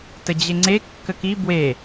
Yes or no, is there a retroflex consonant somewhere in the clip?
no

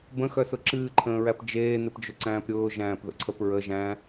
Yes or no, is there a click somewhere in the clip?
yes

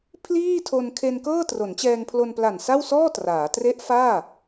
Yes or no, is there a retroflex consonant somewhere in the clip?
no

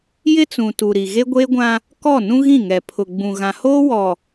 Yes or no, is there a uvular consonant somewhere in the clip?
no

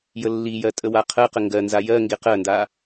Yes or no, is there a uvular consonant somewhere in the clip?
yes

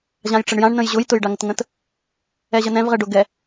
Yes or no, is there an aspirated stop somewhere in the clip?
no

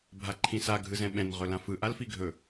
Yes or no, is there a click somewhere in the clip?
yes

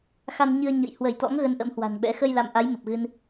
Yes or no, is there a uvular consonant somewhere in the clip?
no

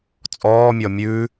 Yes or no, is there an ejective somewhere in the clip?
yes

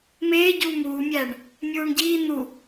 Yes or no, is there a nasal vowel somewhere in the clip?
no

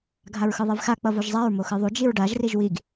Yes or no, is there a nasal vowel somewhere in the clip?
no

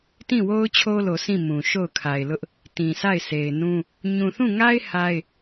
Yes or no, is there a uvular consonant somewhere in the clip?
no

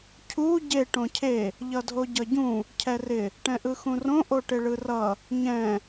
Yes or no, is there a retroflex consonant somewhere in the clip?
yes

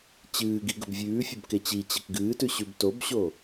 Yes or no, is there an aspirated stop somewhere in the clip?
no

